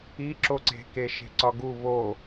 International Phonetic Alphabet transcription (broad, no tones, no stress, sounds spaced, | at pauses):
i ǁ o ǀ e̤ k e ʃ e̤ ǀ ɒ ɡ u β o